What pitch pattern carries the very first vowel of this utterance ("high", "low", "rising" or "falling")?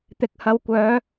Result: rising